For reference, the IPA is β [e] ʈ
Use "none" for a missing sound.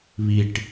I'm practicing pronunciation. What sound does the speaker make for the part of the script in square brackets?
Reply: i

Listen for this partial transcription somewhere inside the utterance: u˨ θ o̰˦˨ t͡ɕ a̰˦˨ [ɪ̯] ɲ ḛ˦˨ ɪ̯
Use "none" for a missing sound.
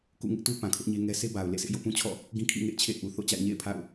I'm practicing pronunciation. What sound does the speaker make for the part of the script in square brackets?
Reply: ɪ̯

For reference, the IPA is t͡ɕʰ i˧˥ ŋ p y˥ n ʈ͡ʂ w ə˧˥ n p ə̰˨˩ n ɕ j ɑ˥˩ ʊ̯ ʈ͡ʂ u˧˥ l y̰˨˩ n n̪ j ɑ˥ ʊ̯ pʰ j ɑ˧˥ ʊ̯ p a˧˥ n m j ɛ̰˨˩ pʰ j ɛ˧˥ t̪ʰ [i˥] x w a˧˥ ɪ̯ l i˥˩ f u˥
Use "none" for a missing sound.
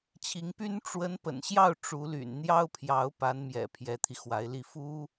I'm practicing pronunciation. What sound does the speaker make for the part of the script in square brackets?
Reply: i˧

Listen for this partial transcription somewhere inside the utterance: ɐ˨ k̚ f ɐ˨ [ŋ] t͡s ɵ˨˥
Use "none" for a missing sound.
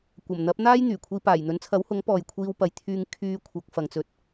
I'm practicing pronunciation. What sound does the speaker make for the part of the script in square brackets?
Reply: ŋ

